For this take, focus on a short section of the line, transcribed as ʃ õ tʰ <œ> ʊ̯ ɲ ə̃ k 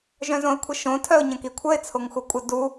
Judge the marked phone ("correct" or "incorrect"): correct